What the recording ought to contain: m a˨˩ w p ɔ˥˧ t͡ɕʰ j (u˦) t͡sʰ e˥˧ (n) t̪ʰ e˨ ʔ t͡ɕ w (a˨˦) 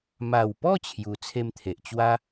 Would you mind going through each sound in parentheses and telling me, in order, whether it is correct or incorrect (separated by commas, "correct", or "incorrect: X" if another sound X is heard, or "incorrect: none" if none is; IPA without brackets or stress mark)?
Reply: incorrect: u˧, incorrect: m, incorrect: a˦